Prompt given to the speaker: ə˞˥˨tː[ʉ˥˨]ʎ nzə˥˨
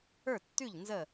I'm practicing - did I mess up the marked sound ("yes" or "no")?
no